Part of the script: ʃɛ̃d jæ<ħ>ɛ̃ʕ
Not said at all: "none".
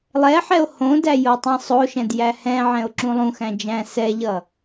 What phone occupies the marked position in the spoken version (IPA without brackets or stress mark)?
h